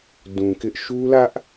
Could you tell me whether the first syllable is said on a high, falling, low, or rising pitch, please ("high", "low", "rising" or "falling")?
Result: low